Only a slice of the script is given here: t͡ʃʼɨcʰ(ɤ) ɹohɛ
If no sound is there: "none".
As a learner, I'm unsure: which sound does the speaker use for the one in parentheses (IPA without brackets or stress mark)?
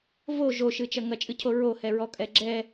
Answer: o